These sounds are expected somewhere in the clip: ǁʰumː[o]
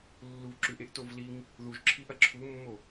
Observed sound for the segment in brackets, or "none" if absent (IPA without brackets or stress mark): o